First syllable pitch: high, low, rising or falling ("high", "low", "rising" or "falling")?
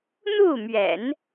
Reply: falling